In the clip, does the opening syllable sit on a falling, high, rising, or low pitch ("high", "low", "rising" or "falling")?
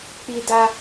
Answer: high